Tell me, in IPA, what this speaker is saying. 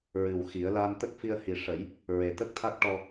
ɹ ɨ˨˩ w x i˨˩˦ ə̯ l a˧ n t̪ ə˦˥ k̚ f i˧ ə̯ h i˨˩ ʂ ə˨˩˦ j | ɹ e˨˩ t̪ ə˦˥ k̚ t̪ʰ a˦˥ k̚ ʈ ɔ˧

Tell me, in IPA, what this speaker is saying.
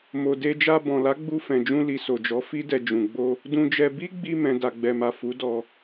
m o˨ d e˧ d͡ʒ a˧ b ɔ̃˨ l a˨˦ ɡ͡b u˧ f ɛ̃˨ d͡ʒ ũ˧ l i˨ s o˨ d͡ʒ ɔ˨˦ f i˦ d ɛ˧ d͡ʒ ũ˨ ɡ͡b o˧ | d ũ˧ d͡ʒ ɛ˧ b i˦ ɡ͡b i˧ m ɛ̃˨ d a˨ ɡ͡b ɛ˨ m a˨ f u˨˦ d ɔ˧

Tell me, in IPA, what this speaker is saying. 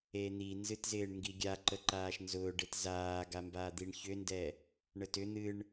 e n̪ i n z ɨ t z ɪː ɳ ŋ ɡ i ɡʲ a ǃ ə ǃ aː ʃ n z ʊː ɖ e t z aː ɡ a m b aː d̪ i ɳ ç ʏ n d ɛ | ɳ ə t ʏ n̪ ɨ ɳ

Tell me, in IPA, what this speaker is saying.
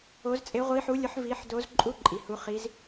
o˦˥ z t͡sʼ e˦˥ ʁʷ i˦˥ ħ u˦˥ lʲ ʊ˦˥ ħ v i˦˥ ħ d o˦˥ z ǃʼ u˦˥ ǃʼ i˨ h u˦˥ χ i˦˥ z

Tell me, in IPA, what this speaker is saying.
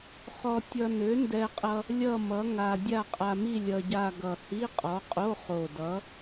χ ɔ˧ tʲ ʌ˧ n ø˨˥ n d ɛ˧ qʼ ʌ˧ | lʲ ʌ˥˧ m ʌ˨˥ ŋ a˧ dʲ a˥˧ qʼ a˧ m i˥˧ lʲ ʌ˧ ɟ a˥˧ ɡ ʌ˨˩ h i˧˥˧ qʼ ɔ˨˥ qʼ o˧˥˧ χ o˨˩ d ʌ˨˥

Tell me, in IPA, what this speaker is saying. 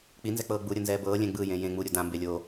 k͡p i n z ɛ k͡p ɤː ɡ͡b u ɾʲ ɤ n z ɛː b ɤː lʲ ɛ̃ ɡ͡b ɯ j ẽ j ẽ ŋ͡m u ɾʲ u d ã m b e lʲ o

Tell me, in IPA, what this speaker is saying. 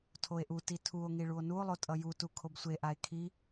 tʰ o e̯ ʔ u t i tʰ u o̯ ŋ i ɭ u o̯ n u o̯ lˠ o tʼ ʌ j u t u kʰ o b sʷ e ʔ a e̯ kʰ i

